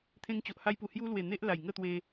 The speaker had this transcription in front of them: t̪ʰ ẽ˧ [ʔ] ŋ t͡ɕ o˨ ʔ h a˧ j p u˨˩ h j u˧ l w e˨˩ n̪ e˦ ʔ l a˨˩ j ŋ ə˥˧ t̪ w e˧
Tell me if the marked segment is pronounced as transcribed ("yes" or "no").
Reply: no